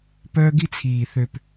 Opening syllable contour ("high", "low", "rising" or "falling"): high